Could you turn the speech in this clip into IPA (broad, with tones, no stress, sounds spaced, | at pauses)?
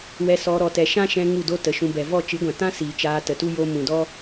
w ɛ˧ s ɔ˧ ɾ ɔ˧ t ɛ˧ ʃ ã˦ ʃ ɛ̃˧ ŋ u˦˨ d o˦ t ə˨˦ ʃ ũ˧ b ɛ˨ v ɔ˦˨ t͡ʃ ɨ˨˦ ɡʷ ã˨ t ã˦ s iː˨ t͡ʃ aː˧ t ə˨ t u˦ j o˧ m ũ˨ d ɔ˦